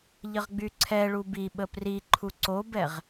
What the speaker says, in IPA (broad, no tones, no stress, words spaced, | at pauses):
ʎəʁɡ͡byǀʰɛɭu biɓə priǃʰu ǀobɛʁ